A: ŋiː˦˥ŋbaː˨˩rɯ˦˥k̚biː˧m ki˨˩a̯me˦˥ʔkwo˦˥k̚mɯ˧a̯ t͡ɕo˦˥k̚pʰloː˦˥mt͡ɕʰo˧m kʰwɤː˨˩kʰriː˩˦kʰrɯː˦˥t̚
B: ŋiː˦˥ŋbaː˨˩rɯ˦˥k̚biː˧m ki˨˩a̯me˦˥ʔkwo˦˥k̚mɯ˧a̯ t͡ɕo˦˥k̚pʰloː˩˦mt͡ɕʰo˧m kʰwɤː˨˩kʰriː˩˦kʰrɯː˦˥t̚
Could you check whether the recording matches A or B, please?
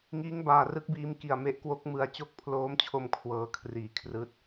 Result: A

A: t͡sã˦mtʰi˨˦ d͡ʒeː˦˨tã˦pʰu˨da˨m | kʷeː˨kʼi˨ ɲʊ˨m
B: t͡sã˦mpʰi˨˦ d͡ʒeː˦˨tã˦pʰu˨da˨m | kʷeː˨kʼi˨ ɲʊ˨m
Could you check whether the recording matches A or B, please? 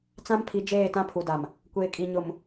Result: B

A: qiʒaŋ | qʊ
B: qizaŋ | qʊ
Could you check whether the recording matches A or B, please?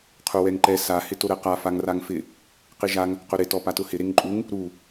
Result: A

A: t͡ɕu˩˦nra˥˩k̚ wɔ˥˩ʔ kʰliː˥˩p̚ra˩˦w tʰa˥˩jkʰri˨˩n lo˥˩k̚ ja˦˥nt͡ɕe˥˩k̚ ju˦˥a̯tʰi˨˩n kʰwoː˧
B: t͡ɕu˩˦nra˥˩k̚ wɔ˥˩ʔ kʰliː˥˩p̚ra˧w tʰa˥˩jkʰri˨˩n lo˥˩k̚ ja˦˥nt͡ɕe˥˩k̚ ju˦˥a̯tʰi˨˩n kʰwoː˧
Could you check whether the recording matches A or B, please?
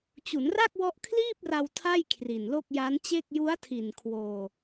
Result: B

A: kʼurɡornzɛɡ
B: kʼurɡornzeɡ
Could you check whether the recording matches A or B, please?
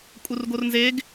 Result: B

